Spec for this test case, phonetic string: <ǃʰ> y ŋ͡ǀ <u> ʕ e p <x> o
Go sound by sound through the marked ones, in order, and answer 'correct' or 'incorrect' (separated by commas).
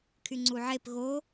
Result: incorrect, correct, incorrect